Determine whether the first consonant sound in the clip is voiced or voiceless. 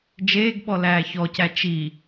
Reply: voiced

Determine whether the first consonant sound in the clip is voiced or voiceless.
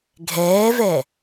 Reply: voiced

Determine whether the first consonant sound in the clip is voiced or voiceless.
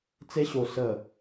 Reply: voiceless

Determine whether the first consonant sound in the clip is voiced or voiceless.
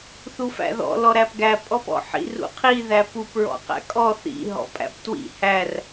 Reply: voiceless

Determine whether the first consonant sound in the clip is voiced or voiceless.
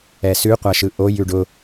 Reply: voiceless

